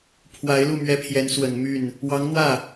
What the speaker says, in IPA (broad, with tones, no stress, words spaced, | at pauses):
pʰwa˧˥ɪ̯lu˥˩ mɥɛ˥pʰjɛ˧˥n swə˨˩n my˥˩n | wɑ˧˥ŋn̪wä˥˩